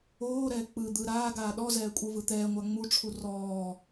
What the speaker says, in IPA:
oː ɾ ɛː k͡p ɯ d̪ ɯ ɾ aː ɡ aː ɗ ɔ z ɛː kʷʼ ɯ v ɯ t̪ ɛː ŋʷ a ŋ͡m u ʈ͡ʂʰ u r ɔː

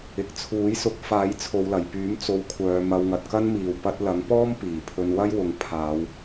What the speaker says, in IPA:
ɪ˨ k̚ t͡sʰ uː˨˥ j s ʊ˨˥ k̚ f aː˨˥ j t͡sʰ o˨˧ w l ɐ˨˩ j p yː˨˥ m t͡s o˧ w kʷʰ œː˨˧ m ɐ˧ w ŋ ɐ˨ t̚ k ɐ˥ n m iː˨ w p ɐ˧ t̚ l ɐ˨˥ ŋ p ɔː˥ m p iː˨˩ pʰ ɵ˧ n w ɐ˥ j w ʊ˨˧ ŋ pʰ aː˨˧ w

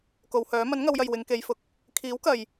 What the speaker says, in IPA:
k o˨˧ w h œː˨˥ m ɐ˨˥ n ŋ ɐ˨˧ w j ɐ˨ j w ɪ˨˧ ŋ k e˨˧ j f ʊ˨˥ k̚ | kʰ iː˨˥ w k ɐ˨ j

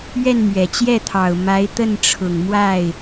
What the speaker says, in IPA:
ɥ ɛ˥˩ n m ɥ ɛ˨˩ t͡ɕ j ɛ˥˩ t̪ʰ ɑ˨˩ ʊ̯ m a˧˥ ɪ̯ t̪ ə˥˩ n ʈ͡ʂʰ ʊ˨˩ ŋ m w a˥˩ ɪ̯

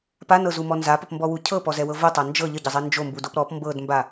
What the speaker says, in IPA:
p a n ɤ z u m ɔ n z a p ə p m b ɔ w u cʰ ɤ p ɔ z ɛ w ɤ v o tˤ a n d͡ʒ ɤ ʎ ə ɟ ə zˤ ɛ n d͡ʒ o m b u d o p ɾ ɔ p m b ɤ d m b a

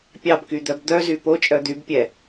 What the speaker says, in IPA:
pʲ ɑ b k y d̪ œ b d̪ œ z y p o t͡ʃʼ œ d̪ y b pʲ ɛ

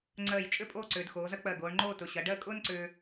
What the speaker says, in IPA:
ŋ͡ǀ ɜ˧˩ j t͡ʃʼ ʏ˥˧ pʼ oː˥˧ ǀ ʏː˩˧ d x oː˩˧ z ɐ˥ k͡p ɜ˧˩ ɡ oː˩˧ ɳ ŋ͡ǃ oː˥˧ t ʊ˩˧ ɕ ɐ˩˧ ɖ ɜ˥˧ kʼ ʊː˥ n ǀ ʏː˧

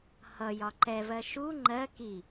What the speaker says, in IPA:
h ʌ j ɒ ǃ ɛ v ɜ ʃ u ŋ͡ǃ ɜ k i

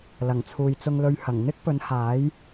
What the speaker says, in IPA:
l ɐ˨˩ ŋ t͡sʰ uː˨ j t͡s ʊ˧ ŋ l ɵ˧ ɥ h ɐ˨˩ ŋ n̪ ɪ˥ k̚ p ɵ˨˥ n h aː˨˥ j

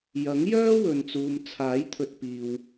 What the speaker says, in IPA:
j ɐ˨˥ ŋ j œː˥ w ɵ˨ n t͡s uː˨ m t͡sʰ aː˨˥ j t̪ʰ ɵ˨ t̚ p iː˨ w

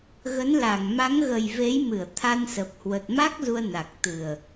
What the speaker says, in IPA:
ɣ ə˨˦ n l a˧˩ ŋ m a˨˦ ŋ ɣ ə˨˩ j v e˨˦ j m ɨ˧˩ ə̯ t̪ʰ a˧ n s ə˨˩ p̚ h w ə˨˩ t̚ m a˦˥ k̚ z u˧ ə̯ n a˨˩ k̚ t̪ ɨ˨˩ ə̯

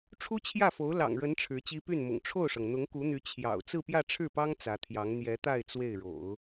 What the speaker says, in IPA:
ʈ͡ʂʰ u˥ t͡ɕʰ j ä˥˩ f o˧˥ ʊ̯ l ɑ̰˨˩ ŋ ɻ ə˧˥ n ʈ͡ʂʰ ɻ̩˧˥ t͡ɕ i˥ p y˥˩ n m ʊ̰˨˩ ŋ ʈ͡ʂʰ o˥˩ ʊ̯ ʂ ɤ˩ ŋ n̪ ʊ˧˥ ŋ k u˧˥ n̪ y˧˥ t͡ɕʰ j ɑ̰˨˩ ʊ̯ t͡s ɹ̩˥˧ p j ä˥˧ ʈ͡ʂʰ ɻ̩˥˩ p ɑ˥ ŋ t͡s ä˧˥ t̪ʰ j ɑ˧˥ ŋ n̪ j ɛ˧˥ t̪ a˥˧ ɪ̯ t͡s w e˥˩ ɪ̯ ɻ o̰˨˩˦ ʊ̯

